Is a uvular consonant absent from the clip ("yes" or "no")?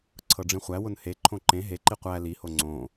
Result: no